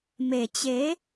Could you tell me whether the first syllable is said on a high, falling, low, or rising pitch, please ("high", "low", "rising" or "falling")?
low